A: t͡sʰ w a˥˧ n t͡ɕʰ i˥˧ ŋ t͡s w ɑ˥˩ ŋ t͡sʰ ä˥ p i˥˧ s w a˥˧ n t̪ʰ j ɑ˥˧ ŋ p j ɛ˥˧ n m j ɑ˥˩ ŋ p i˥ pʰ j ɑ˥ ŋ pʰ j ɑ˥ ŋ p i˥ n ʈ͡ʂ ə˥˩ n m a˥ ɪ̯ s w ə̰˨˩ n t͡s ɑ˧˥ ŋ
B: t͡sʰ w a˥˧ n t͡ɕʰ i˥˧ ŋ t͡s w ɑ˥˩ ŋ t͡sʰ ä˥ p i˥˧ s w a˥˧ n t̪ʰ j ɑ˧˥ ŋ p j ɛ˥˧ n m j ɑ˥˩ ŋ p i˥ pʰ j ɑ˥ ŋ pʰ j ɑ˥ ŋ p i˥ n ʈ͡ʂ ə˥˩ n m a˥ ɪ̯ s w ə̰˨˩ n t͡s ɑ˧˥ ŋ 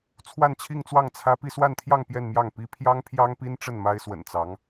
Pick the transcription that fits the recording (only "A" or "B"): A